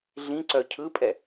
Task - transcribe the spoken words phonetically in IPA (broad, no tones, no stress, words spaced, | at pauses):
ɮĩǀœ cʰɯpʼɛ